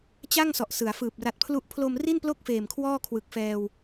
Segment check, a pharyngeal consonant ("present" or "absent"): absent